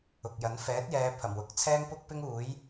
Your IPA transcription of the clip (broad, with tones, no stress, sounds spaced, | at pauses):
ʊ˨ k̚ j ɐ˨˥ n f ɛː˨˥ t̚ j ɛː˨˧ pʰ ɐ˨˩ m w ʊ˨˥ k̚ t͡sʰ ɛː˥ ŋ p ʊ˥ k̚ p ɪ˥ ŋ uː˨˥ j